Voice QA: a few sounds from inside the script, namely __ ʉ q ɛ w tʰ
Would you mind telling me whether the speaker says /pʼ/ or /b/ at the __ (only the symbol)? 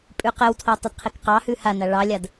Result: pʼ